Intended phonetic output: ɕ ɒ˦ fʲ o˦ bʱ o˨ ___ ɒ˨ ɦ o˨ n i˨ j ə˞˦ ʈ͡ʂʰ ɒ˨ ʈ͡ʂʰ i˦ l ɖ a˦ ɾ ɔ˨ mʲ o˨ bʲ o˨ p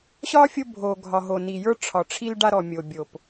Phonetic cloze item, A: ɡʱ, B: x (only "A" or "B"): A